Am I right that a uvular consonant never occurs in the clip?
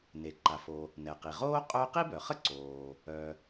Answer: no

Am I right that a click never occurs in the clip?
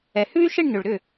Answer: yes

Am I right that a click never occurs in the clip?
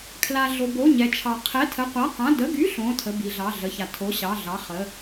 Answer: yes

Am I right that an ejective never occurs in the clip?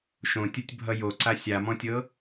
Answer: yes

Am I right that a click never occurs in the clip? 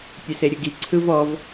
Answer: no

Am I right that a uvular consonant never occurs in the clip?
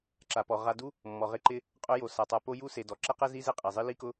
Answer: no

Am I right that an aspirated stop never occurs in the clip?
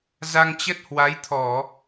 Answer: no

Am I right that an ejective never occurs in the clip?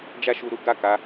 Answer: yes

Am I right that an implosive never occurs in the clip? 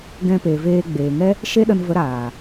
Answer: no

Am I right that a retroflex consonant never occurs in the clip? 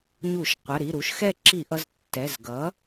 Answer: yes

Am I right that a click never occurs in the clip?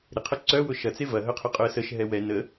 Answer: no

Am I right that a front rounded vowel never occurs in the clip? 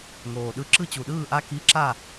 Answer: yes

